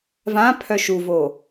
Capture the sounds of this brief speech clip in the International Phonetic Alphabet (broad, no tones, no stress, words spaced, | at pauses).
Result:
vãpʰœ ʃuvo